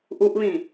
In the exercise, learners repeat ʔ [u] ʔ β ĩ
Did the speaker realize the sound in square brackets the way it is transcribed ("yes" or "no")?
yes